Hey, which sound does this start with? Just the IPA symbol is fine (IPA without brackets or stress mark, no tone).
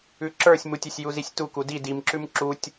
ʉ